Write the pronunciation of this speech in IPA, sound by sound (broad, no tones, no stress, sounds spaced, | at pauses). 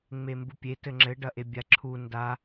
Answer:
ŋ͡m e m b u pʲ e t ɘ ŋ͡ǁ ɘ ɖ ɐ ʔ e bʲ a ǁʰ u n d a